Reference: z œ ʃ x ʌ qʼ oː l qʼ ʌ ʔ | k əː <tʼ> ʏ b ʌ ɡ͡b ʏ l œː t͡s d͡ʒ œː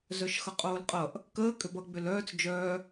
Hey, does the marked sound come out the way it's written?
no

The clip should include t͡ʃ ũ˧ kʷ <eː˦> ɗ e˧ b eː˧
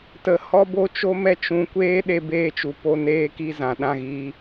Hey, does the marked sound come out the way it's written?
yes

